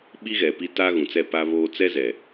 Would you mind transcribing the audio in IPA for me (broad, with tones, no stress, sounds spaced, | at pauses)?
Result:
ɓ i˦ ɣ ɛ˨ p i˦ t a˦ ɣ ũ˨ t͡s ɛ˦˨ p a˦ β oː˦ t͡s ɛ˦ z ɛ˨